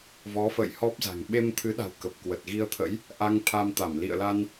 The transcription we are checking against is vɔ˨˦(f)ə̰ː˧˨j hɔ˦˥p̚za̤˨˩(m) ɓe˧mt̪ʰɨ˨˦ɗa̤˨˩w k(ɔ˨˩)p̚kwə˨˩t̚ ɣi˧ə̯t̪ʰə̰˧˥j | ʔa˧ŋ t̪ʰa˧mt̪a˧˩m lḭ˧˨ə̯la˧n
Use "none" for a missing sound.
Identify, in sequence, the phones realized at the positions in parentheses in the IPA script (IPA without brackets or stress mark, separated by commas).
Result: f, ŋ, ə˨˩